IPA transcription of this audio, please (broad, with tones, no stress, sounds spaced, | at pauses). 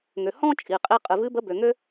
ŋ ø˩ h ɔ̃˧ t͡ʃʼ i˩ qʼ i˧ qʼ ɨ˩ v ɨ˧˥ b ə˧˥ b ø˩ ŋ ø˥